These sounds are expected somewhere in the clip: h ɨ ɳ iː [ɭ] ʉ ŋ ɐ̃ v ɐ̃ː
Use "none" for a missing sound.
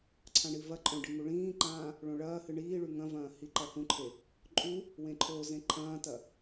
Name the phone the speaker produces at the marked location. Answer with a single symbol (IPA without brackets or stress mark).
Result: ɭ